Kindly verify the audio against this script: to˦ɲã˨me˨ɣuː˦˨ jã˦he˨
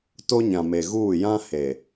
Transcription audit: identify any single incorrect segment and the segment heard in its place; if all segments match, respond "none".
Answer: none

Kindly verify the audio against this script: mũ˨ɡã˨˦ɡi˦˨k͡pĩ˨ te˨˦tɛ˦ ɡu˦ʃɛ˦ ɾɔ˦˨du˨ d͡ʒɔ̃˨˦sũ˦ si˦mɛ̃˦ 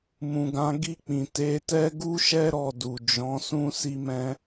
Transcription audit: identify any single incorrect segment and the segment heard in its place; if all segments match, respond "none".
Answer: none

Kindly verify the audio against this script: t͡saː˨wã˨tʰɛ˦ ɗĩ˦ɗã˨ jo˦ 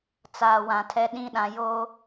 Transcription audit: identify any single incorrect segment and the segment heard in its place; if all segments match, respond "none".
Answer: none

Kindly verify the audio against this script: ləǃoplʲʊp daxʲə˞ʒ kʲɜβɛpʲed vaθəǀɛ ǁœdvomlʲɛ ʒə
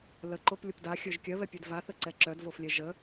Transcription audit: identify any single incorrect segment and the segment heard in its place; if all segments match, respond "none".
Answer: m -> f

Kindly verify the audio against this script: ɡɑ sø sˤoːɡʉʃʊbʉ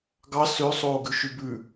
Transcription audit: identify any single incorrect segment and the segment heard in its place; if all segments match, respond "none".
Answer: ʊ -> ʉ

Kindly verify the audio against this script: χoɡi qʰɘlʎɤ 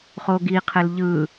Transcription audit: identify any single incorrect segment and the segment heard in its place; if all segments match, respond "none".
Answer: ɤ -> ɯ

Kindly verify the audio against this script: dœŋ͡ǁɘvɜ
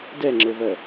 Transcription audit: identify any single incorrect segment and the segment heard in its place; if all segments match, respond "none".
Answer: œ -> ɛ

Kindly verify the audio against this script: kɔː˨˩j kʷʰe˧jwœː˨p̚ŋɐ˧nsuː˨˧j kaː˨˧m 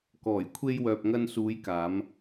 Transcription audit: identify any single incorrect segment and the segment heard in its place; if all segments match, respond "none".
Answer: none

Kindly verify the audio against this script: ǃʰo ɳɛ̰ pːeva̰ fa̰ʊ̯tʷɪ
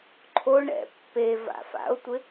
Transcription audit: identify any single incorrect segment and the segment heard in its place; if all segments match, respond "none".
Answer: none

